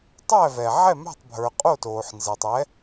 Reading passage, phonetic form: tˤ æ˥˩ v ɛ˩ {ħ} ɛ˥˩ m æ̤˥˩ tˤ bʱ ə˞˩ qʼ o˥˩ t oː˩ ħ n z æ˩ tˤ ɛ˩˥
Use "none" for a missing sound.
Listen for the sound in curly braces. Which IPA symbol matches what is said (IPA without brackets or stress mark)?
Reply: ʕ